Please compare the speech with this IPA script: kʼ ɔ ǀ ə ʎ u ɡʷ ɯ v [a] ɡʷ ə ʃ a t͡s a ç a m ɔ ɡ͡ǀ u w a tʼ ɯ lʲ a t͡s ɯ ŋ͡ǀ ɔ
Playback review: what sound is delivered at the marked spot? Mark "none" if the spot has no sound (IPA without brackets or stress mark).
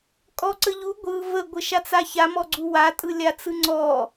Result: ə